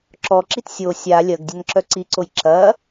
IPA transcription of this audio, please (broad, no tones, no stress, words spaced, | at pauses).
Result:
ǁɔǁit sʲo sʲa lʲɐɡ dʲɐnǁœǀiǀoj ǁɐ